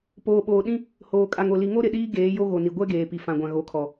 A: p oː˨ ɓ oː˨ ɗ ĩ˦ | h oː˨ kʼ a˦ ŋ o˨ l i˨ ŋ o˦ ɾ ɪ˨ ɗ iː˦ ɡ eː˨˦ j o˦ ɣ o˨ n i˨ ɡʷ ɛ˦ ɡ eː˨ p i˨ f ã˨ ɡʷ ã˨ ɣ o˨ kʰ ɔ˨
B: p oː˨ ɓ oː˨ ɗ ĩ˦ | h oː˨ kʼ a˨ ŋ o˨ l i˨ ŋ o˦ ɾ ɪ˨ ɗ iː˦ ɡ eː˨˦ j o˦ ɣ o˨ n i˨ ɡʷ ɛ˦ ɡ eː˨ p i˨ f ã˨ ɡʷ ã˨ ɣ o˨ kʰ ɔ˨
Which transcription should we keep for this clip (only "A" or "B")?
B